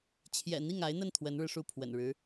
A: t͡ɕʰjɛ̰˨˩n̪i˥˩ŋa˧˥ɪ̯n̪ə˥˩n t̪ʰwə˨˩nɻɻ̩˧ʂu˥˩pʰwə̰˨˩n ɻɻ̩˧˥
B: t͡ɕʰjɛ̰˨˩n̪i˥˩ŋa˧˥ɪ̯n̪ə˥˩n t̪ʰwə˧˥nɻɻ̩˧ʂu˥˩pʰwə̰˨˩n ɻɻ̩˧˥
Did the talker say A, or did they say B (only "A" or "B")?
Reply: B